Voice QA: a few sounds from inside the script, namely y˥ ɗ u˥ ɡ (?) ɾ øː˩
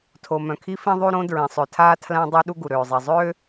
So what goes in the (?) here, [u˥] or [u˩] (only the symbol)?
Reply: u˩